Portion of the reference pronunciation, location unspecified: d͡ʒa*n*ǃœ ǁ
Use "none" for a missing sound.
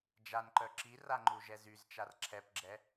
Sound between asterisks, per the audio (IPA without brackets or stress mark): n